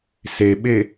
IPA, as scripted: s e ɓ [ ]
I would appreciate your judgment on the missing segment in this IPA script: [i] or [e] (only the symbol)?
e